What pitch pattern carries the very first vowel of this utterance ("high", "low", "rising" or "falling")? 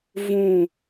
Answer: falling